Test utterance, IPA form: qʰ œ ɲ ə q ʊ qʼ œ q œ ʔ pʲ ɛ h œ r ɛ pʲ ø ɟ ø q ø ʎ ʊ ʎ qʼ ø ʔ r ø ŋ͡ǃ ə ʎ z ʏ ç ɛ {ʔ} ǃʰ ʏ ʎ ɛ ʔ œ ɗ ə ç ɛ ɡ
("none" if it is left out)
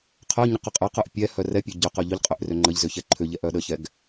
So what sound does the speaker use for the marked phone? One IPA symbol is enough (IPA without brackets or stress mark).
none